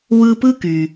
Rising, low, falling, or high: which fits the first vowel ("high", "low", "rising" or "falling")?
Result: high